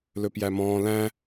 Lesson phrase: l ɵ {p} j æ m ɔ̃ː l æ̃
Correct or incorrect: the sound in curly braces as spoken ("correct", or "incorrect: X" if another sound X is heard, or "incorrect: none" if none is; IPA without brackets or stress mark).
correct